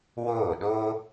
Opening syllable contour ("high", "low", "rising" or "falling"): falling